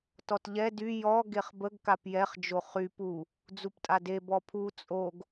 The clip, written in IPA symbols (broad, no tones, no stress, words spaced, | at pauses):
tɔtʎɛ dy jɔ ɡeχbəɡ kapjɛχ d͡ʒoχy pu | d͡zuptʼade bɔpʰu t͡sʼoɡ